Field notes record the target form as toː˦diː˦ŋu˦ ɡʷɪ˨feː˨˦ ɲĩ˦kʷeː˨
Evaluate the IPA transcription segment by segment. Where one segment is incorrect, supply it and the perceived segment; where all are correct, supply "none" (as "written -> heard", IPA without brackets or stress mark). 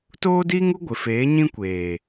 none